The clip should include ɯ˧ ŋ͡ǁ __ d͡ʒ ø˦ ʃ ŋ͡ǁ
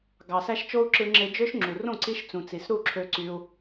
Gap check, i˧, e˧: e˧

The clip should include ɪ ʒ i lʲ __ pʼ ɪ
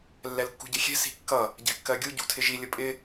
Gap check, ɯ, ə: ə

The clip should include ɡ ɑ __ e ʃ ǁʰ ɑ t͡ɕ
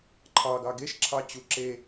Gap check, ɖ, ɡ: ɡ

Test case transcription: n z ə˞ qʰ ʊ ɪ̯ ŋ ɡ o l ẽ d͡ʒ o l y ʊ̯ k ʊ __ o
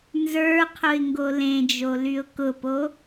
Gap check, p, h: p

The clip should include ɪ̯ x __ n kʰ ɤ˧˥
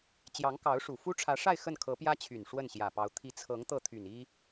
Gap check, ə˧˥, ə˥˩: ə˥˩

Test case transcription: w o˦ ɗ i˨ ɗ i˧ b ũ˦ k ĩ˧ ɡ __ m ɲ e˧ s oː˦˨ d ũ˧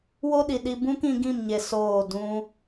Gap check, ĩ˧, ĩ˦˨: ĩ˦˨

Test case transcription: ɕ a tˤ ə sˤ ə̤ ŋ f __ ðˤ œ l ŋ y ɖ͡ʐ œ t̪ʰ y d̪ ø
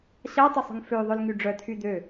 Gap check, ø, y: ø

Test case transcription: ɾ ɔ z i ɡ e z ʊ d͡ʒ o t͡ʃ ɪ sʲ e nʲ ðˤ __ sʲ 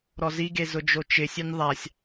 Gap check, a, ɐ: a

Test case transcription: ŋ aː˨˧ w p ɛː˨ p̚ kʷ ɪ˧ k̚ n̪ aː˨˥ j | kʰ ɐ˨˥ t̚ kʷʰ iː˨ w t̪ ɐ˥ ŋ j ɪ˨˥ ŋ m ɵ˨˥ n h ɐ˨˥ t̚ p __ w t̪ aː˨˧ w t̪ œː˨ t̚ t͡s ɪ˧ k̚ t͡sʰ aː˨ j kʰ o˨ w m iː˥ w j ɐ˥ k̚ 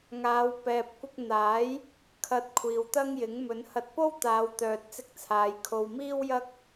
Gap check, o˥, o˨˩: o˥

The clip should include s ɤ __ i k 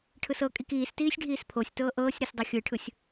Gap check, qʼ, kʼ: kʼ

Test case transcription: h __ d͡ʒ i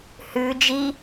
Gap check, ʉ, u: ʉ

